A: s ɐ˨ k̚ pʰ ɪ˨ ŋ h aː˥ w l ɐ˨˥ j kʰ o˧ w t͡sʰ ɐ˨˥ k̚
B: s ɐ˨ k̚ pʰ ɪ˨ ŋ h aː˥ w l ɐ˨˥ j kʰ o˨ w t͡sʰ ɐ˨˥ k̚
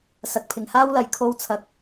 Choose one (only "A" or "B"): A